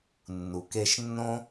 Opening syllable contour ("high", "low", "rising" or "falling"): low